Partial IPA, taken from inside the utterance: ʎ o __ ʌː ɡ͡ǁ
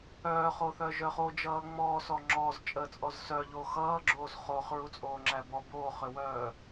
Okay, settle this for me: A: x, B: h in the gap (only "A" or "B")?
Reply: A